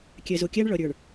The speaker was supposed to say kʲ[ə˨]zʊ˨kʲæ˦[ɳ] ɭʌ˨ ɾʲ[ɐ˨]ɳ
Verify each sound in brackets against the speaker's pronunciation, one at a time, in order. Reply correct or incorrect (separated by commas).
incorrect, correct, incorrect